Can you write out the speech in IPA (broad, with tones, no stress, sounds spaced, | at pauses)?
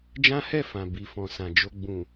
d͡ʒ ã˦ h ɛ˦˨ f ã˨ b i˨ f ɔ̃˨ s ã˨ d͡ʒ o˧ ɡ͡b ũ˨